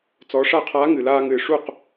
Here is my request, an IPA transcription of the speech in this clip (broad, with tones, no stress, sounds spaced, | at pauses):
t͡s ɔ˩˧ ʂ a˥˩ qʰ aː˧˥ ŋ ɨ˩ l aː˧ ŋ ɨː˩ ʂ u˥˩ q